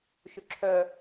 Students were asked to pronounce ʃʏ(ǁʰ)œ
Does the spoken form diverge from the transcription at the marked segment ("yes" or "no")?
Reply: no